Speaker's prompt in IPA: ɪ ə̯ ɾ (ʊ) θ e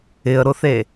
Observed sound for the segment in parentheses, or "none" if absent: ʊ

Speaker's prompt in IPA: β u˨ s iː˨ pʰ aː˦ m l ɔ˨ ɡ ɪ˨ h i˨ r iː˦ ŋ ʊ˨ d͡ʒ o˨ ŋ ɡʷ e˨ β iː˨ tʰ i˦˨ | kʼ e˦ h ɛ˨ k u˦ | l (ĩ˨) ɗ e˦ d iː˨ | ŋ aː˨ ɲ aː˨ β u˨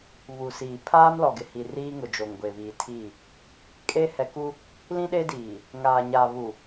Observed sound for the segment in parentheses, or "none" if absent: ĩ˦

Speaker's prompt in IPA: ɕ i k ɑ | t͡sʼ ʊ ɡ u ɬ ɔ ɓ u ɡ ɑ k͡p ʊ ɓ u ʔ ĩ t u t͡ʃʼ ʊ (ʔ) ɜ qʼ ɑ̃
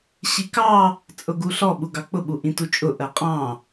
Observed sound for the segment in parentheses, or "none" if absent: ʔ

